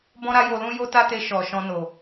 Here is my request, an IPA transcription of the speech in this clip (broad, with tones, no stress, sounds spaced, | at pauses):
b ɔ̃˦ ɾ a˦ j o˧ l ũ˦ j o˦ t a˦ t e˧ ʃ ɔ˨ ʃ ɔ̃˧ n o˨